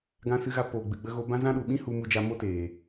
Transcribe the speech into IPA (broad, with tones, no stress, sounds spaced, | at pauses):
ɡ ã˧ s ɨ˧ ɣ a˧ p oː˨ ɡ͡b ɨ˨ ɡ͡b ə˧ ɣ o˧ b ã˦ z ã˦ ɗ u˨ ɓ ĩ˦ h u˧ m u˧ d͡ʒ a˧ m o˦ t eː˨